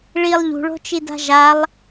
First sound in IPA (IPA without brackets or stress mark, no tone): ɭ